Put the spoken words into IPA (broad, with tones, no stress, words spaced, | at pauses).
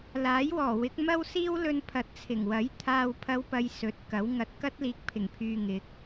laː˨˥jwɔː˨˩wɪ˨˥k̚ mɐ˥w siː˥wlɵ˧n pʰɐ˨t̚t͡sʰɪ˨˩ŋwɐ˨˥j t̪ʰaː˨wpʰɐ˨˧w pɐ˧j sɵ˨˥t̚kɐ˨˥w ŋɐ˨t̚kɐ˥t̚liː˨k̚ pʰɪ˨˩ŋpʰyː˨ ŋɪ˨˥k̚